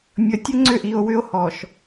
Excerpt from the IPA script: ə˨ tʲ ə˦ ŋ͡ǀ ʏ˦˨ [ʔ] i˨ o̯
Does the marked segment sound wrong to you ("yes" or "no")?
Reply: no